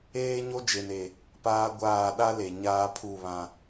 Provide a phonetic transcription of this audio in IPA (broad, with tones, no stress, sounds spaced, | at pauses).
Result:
eː˦ ɲ o˦ d͡ʒ e˨ n e˨ | p aː˦ ɡʷ aː˦˨ ɗ a˦ l e˨ ɲ aː˦ pʰ u˦˨ β ã˦